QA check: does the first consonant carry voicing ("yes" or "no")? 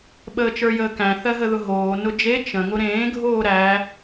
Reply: yes